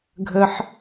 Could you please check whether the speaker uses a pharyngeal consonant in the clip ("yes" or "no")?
yes